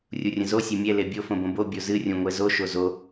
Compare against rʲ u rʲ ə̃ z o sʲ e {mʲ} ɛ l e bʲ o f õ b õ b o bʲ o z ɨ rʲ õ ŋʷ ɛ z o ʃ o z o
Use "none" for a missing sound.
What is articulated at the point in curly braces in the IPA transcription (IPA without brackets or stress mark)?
mʲ